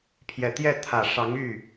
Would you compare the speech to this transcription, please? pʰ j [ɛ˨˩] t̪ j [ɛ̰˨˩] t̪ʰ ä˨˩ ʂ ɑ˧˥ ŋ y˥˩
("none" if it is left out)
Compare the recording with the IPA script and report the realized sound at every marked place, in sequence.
ɛ˨˩, ɛ˥˩

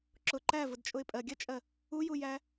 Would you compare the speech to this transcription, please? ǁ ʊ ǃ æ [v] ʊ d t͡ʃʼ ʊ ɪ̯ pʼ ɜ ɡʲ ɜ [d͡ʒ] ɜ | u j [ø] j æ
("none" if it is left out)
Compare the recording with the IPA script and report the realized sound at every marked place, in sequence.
v, t͡ʃʼ, u

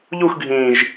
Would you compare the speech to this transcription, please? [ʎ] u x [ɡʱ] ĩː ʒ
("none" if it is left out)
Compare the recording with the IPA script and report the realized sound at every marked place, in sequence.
ʎ, ɡʱ

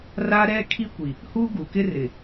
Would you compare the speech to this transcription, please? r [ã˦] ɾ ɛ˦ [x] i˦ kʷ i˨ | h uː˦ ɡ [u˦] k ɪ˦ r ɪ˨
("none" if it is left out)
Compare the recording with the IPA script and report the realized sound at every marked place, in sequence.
a˦, kʰ, u˨

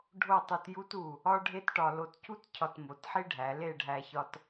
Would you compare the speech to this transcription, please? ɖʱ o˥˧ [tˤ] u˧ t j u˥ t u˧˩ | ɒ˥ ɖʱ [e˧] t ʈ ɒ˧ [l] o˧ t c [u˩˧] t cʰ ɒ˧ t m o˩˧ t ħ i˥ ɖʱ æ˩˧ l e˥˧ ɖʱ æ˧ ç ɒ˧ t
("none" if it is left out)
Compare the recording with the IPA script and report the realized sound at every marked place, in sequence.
tˤ, e˥, l, u˥

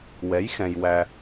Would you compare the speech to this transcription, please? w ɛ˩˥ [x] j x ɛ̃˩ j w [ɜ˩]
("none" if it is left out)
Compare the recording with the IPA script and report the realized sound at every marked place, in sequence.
none, æ˩

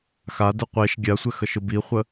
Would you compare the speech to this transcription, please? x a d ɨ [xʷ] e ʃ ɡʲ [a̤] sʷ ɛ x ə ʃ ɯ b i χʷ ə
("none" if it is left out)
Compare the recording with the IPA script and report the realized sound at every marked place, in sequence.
qʷ, a

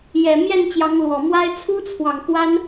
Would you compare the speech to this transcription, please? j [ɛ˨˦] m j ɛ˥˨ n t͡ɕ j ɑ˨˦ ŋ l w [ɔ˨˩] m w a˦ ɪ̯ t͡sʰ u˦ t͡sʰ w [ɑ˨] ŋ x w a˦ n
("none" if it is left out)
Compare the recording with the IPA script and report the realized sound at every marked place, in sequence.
ɛ˨˩, ɔ˨˩, ɑ˨

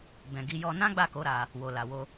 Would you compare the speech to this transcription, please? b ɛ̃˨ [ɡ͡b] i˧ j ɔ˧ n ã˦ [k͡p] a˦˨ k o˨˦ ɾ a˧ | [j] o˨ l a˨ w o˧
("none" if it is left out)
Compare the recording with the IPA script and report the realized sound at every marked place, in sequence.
ɡ, ɡ͡b, w

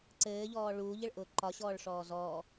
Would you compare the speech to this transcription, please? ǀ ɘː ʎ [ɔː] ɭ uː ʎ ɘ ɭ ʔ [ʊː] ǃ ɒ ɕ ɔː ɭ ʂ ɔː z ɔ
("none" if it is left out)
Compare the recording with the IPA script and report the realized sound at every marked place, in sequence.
ɔː, ʊː

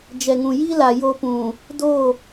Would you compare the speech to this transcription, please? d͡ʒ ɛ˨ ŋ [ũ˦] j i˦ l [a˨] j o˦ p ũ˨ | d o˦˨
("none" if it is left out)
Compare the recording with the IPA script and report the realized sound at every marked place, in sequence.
ũ˨, a˨

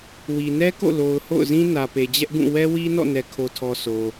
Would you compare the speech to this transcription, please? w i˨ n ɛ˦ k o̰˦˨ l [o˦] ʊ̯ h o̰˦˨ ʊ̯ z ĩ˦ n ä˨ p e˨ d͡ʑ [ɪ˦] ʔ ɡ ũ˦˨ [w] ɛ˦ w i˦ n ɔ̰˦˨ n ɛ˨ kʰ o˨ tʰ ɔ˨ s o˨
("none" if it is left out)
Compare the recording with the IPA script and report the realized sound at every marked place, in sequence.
o˨, ɛ˦, w

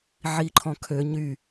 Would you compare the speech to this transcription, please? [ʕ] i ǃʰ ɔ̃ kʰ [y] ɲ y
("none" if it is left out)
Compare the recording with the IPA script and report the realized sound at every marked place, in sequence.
ʕ, ø

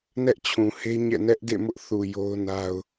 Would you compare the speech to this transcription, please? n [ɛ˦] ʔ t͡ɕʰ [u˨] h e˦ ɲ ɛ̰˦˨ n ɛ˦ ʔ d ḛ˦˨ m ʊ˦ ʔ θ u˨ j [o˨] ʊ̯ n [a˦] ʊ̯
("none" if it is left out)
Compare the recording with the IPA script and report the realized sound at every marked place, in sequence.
ɛ˦, ũ˨, o˦, a˦

